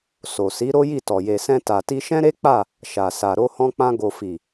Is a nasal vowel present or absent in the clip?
present